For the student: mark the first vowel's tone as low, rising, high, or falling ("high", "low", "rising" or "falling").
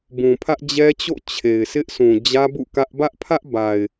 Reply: low